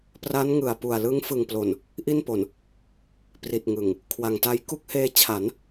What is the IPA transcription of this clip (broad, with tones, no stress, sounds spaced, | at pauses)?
p r a˦˥ n ŋ ɯ˨˩ a̯ p u˨˩ a̯ l ɯ˦˥ ŋ f ɯ˨˩ ŋ p l o˨˩ n | ʔ i˥˩ n p o˨˩ n | p r i˨˩ t̚ ŋ ɯ˨˩ ŋ | kʰ w a˨˩ ŋ t a˦˥ j k u˦˥ k̚ h eː˧ t͡ɕʰ a˩˦ n